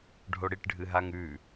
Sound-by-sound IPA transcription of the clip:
ɖʱoɽiʈɖʱɨɦaŋ ʉ

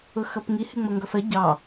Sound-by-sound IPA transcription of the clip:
ʊxʌpŋi hɪŋ͡mʌŋɡɔsʌ ɟɑ

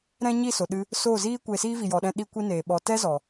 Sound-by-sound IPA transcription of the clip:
ɾɛ̃˦ ɲi˦˨so˨ɗɨ˧ | so˦˨ziː˦ kʷe˧siː˦ vi˨jɔ˨ɗɛ̃˧ ɗi˧kʷi˧ neː˨ ɓɔ˨tɛ˦zɔ˨

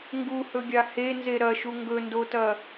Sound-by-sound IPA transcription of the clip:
ŋɡuhɵɡʲa henze ɾɐʃu ŋɡɵndotɐ

